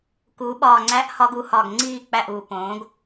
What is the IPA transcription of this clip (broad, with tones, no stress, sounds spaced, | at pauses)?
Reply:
k uː˩˥ ɓ ɒː˧˩ ŋ͡ǀ æ˦˥ ʔ h ɒ˦˥ ɡ u˩˥ h ɒ˧˩ ɡ ŋ͡ǀ iː˥˨ k͡p æ˥˨ ʔ u˧˩ p õː˩˥ ɡ